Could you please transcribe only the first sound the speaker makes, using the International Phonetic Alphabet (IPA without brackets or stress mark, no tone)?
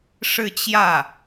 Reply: ʂ